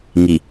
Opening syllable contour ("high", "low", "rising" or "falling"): low